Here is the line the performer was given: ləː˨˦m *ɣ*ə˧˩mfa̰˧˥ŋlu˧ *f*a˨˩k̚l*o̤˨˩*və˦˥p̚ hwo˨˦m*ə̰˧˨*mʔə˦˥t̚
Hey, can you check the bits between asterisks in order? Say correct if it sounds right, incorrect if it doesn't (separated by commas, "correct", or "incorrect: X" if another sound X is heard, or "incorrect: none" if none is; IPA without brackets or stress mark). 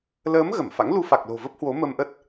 correct, correct, correct, incorrect: ə˧